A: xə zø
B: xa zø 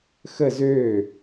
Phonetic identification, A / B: A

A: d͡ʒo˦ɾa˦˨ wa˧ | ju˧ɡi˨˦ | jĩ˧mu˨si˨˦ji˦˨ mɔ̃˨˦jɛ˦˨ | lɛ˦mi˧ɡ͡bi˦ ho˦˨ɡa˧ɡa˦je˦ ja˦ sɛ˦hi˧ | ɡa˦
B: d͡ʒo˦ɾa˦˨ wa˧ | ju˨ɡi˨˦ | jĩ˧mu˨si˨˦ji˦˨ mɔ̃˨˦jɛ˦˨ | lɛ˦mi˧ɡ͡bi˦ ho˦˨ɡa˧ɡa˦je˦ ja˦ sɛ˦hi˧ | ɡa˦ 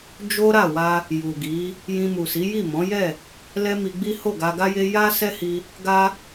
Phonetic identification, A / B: B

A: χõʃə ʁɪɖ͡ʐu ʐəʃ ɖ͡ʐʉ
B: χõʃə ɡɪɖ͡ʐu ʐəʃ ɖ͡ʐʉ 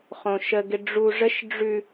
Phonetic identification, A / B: B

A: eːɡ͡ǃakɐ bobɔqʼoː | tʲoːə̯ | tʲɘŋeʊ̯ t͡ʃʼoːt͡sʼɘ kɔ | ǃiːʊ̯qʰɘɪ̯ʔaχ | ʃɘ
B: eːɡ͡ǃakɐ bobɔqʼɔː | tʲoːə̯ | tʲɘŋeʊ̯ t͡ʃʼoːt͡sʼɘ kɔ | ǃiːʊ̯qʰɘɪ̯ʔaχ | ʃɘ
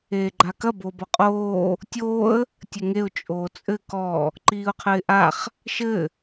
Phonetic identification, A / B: A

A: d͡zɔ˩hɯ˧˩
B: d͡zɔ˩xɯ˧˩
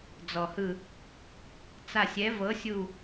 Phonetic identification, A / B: A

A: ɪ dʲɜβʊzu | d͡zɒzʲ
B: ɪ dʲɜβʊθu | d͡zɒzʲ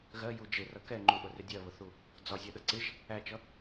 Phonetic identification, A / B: B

